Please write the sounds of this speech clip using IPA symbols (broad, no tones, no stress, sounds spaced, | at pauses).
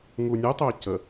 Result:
ŋ u nʲ u tˤ ø c ə